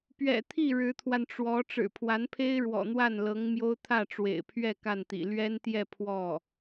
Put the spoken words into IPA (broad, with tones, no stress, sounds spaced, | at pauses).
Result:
p ɥ ɛ̰˨˩ t̪ʰ i˥˩ ɻ ɻ̩˧˥ t̪ʰ w a˧ n ʈ͡ʂ w ɔ˧˥ ʈ͡ʂ ɻ̩˨˩ pʰ w a˧˥ n pʰ e˥ ɪ̯ ɻ w ɔ̰˨˩ n̪ w a˥˩ n l ɤ˧˥ ŋ m j o˥ ʊ̯ t̪ʰ ä˥˩ ʈ͡ʂ w ḛ˨˩ ɪ̯ pʰ ɥ ɛ˥˧ k a˥˩ n t̪ ḭ˨˩ l ɥ ɛ˥ n t̪ j ɛ˥˧ pʰ w ɔ˥˩